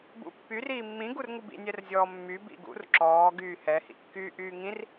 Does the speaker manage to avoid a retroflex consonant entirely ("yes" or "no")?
yes